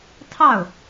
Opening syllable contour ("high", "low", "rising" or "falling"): falling